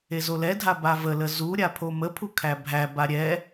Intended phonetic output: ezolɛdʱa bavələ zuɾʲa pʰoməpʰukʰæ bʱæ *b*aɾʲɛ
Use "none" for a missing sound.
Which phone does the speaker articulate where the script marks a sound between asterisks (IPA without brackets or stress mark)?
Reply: b